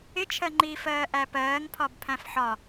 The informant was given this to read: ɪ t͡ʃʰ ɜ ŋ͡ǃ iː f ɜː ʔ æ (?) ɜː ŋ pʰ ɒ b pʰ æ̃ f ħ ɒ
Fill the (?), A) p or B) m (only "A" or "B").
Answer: A